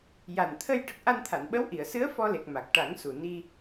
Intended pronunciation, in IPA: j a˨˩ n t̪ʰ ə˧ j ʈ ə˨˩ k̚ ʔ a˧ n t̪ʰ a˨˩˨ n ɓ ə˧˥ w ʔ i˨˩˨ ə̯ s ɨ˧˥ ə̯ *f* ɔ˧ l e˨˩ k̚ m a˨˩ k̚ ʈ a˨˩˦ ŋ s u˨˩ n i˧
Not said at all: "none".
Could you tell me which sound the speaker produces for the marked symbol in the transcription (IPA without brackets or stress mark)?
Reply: f